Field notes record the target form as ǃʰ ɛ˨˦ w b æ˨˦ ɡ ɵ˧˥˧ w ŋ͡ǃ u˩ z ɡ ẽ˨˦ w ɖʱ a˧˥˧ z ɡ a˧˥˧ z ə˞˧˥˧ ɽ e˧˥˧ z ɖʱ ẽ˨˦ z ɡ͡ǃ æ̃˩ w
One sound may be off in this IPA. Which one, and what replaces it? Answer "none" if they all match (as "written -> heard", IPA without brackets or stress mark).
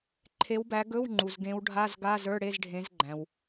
ɛ˨˦ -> e˨˦